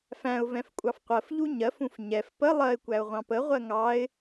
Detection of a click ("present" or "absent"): absent